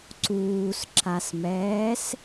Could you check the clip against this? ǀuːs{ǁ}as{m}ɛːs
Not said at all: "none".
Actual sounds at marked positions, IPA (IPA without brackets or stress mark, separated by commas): ǁ, m